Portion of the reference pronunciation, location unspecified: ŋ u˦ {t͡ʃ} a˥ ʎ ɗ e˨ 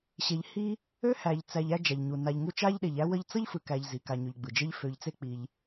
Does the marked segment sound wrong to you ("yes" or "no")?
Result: no